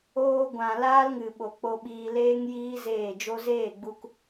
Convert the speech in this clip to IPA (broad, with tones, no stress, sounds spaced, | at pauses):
oː˧ ɡʷ ã˨ l aː˦ l ŋ ɨ˨ ɓ o˨ k͡p o˧ ɓ iː˧ l eː˦ ŋ j iː˦ z eː˦˨ d͡ʒ o˧ z eː˦˨ ɡ͡b u˧ k